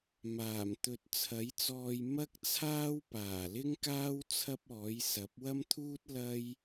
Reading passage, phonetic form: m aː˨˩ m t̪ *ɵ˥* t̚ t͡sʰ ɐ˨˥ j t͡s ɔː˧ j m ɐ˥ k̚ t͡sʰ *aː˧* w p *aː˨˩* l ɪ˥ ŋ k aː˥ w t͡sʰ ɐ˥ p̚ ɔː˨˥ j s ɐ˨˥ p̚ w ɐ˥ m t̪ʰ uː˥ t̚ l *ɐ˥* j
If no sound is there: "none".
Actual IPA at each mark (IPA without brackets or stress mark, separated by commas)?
ɵ˨, aː˥, aː˨˩, ɐ˥